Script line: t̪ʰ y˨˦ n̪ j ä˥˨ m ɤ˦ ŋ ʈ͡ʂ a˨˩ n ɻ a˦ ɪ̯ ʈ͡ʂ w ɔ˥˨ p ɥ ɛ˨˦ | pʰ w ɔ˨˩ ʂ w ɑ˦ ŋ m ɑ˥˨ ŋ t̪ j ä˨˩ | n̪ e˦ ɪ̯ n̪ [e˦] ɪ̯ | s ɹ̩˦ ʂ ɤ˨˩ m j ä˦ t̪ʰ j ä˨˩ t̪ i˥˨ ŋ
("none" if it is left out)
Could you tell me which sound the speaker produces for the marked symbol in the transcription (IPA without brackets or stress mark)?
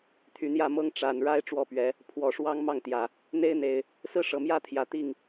e˨˩